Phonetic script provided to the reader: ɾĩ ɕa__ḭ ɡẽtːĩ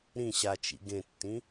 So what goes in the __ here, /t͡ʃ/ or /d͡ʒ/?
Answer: t͡ʃ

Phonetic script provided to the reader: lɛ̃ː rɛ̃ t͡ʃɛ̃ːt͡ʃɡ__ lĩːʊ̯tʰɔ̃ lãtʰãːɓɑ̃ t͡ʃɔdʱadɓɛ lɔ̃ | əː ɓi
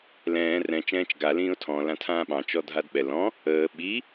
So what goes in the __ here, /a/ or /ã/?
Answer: a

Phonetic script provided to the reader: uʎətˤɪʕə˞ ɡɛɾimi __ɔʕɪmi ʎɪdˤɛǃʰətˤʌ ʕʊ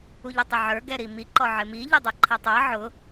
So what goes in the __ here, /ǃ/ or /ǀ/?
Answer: ǃ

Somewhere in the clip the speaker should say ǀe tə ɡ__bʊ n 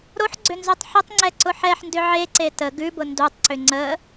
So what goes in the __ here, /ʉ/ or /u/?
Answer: ʉ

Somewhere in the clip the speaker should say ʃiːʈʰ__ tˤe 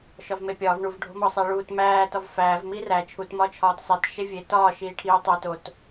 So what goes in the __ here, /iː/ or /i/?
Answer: iː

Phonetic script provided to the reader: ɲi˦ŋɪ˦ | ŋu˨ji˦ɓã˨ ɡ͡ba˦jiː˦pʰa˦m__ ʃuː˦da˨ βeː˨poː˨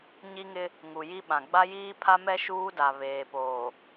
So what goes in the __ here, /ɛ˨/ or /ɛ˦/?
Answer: ɛ˦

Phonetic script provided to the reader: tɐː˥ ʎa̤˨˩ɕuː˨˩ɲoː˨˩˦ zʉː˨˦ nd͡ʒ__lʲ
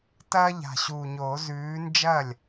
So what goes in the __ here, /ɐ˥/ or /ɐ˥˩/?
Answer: ɐ˥˩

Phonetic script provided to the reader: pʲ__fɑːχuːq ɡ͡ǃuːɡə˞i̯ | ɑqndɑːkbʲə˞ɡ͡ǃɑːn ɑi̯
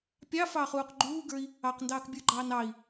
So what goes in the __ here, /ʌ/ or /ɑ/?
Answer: ɑ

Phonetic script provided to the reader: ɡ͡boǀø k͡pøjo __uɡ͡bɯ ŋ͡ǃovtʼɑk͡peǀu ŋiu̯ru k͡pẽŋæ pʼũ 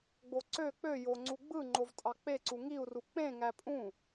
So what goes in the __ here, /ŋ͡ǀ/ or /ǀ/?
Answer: ŋ͡ǀ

